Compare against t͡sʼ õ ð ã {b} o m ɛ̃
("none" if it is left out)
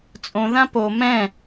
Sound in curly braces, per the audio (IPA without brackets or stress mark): p